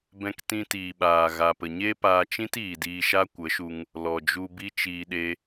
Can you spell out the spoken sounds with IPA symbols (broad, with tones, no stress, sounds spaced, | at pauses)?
b ɛ̃˧ k t ĩ˧ t iː˨ ɓ aː˨ ɣ a˨ p ə˨ ɲ e˦ p aː˧ t͡ʃ ĩ˦ t iː˨ d iː˧ ʃ a˦ kʷ ə˨˦ ʃ u˧ ŋ | l ɔ˨ d͡ʒ u˧ b i˦ t͡ʃ iː˧ ɗ e˦